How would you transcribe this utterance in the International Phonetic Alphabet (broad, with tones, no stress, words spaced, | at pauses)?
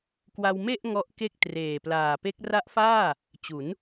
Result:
kwa˧wme˥˩ʔ ŋɔ˦˥ʔke˥˩k̚ treː˨˩plaː˨˩pe˦˥k̚ ra˦˥ʔfaː˥˩ | t͡ɕu˩˦n